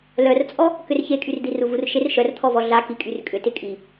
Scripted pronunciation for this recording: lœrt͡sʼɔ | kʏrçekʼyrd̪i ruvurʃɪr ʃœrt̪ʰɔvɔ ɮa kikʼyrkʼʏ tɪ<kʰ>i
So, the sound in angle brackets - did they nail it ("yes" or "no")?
no